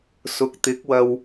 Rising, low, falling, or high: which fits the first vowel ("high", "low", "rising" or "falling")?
rising